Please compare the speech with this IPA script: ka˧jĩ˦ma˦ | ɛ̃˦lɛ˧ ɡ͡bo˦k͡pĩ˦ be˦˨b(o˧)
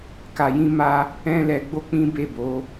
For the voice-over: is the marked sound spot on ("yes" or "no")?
no